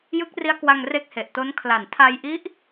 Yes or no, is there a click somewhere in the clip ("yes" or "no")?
no